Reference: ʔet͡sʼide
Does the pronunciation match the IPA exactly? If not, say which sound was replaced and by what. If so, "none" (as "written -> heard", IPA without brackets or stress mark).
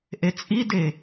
none